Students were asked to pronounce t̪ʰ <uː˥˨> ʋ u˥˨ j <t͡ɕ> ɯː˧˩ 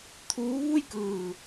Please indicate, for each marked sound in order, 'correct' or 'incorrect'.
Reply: incorrect: uː˧˥, incorrect: k

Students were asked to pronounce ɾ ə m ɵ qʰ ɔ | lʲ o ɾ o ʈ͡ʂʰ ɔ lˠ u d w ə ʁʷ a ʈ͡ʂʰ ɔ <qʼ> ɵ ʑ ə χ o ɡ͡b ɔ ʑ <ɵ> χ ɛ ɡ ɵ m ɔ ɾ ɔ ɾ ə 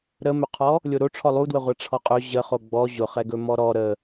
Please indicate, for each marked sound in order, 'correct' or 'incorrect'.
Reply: correct, incorrect: ʊ

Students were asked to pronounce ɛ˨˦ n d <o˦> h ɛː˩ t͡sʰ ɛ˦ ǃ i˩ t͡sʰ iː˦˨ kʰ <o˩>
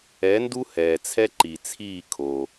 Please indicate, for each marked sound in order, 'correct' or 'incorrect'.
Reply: incorrect: u˦, correct

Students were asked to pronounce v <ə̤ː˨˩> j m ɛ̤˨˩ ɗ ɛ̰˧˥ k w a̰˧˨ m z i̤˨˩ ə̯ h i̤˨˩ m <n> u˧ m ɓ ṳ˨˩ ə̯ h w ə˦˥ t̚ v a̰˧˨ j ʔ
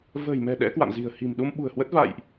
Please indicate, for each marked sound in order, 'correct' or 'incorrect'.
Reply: correct, incorrect: ɗ

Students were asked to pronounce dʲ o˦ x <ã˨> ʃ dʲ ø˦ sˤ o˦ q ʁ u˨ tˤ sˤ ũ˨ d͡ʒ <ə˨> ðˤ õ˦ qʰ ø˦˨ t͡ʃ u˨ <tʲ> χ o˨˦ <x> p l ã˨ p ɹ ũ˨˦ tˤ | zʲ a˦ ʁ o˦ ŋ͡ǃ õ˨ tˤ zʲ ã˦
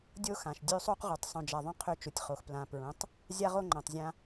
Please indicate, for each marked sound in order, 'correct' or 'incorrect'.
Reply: correct, incorrect: a˨, correct, correct

